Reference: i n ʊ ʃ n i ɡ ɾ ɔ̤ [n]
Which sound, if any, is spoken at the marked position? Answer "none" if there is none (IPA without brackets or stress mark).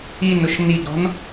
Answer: n